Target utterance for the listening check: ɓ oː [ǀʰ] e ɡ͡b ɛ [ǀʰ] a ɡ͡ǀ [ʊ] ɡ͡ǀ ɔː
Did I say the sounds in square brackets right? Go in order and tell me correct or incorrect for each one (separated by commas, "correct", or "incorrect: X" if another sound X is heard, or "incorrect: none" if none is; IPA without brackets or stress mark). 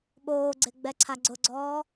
incorrect: ɡ͡ǀ, correct, correct